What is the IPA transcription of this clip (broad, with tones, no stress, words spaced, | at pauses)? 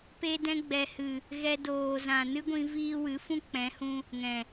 pe˧dɛ̃˧ɡ͡bɛ˨hɨ˨ | ɣɛ˧ doː˨zã˨ nɨ˦ɡʷĩ˧ viː˧wɨ˨˦ fũ˦k͡pɛ̃˨˦hũ˧ | ŋɛ̃˨